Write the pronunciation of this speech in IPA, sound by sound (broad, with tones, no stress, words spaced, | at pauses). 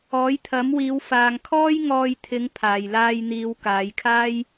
ɔː˨˥jt̪ʰɐ˨˥mwiː˨˧wfaː˨ŋ kʰɔː˥jŋɔː˧jt̪ʰɪ˨˧ŋ pʰaː˨˩jlaː˧jn̪iː˨˧w kaː˨˧jkʰaː˥j